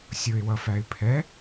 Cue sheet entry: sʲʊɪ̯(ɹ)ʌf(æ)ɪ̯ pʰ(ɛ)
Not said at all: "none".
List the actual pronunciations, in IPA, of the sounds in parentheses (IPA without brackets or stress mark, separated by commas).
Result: w, æ, ɛ